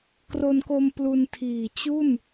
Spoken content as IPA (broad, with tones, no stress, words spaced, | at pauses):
kro˧nko˧m plu˧ntʰiː˨˩ t͡ɕu˥˩n